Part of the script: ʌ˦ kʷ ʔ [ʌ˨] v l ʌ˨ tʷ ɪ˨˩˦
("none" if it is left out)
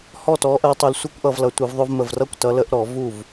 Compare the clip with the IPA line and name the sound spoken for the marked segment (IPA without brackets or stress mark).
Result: ʌ˨